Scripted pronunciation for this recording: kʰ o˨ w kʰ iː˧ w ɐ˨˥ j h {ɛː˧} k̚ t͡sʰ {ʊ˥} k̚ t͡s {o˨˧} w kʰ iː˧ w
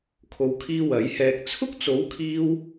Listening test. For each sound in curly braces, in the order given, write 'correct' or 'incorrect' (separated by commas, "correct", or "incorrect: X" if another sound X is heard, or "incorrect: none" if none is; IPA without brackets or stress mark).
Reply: correct, correct, incorrect: o˨˥